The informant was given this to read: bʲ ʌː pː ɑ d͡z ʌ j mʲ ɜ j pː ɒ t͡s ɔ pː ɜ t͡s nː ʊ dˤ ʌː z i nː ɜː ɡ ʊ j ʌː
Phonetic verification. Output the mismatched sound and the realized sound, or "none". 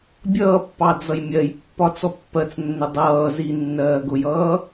none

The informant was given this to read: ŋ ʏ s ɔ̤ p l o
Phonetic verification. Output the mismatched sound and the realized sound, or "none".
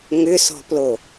none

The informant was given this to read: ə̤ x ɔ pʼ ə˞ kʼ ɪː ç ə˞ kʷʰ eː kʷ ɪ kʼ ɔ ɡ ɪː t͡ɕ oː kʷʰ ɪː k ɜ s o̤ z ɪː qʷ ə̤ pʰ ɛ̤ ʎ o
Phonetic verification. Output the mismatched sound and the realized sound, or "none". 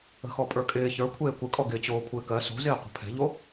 none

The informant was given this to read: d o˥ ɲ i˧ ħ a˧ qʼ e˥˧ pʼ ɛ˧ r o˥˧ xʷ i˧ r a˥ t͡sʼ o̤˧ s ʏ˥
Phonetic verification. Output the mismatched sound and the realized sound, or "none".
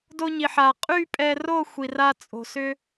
e˥˧ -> y˥˧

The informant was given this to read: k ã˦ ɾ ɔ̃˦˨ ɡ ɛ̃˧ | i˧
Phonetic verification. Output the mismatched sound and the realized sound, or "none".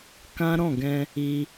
none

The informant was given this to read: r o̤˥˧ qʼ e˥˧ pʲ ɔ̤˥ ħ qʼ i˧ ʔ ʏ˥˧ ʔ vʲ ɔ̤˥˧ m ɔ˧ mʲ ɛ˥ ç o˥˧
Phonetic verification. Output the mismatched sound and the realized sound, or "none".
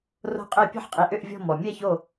none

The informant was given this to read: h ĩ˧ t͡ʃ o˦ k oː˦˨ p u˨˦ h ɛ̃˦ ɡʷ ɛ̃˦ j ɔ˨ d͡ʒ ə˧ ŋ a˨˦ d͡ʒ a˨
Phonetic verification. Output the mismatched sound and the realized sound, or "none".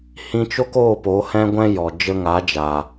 u˨˦ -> o˨˦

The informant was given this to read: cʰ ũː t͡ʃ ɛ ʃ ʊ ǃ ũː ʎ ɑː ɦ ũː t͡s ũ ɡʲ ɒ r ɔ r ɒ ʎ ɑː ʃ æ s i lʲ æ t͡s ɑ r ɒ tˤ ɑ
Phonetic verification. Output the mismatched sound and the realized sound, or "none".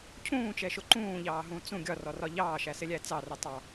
i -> ɪ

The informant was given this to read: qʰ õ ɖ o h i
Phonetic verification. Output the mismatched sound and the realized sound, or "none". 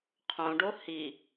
none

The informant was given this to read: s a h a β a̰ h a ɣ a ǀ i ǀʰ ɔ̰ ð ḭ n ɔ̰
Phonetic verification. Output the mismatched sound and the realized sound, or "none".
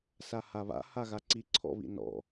ð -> β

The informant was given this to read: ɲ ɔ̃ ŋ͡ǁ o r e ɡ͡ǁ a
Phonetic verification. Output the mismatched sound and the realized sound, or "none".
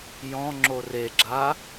ɲ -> j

